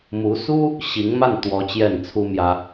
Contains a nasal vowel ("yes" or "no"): no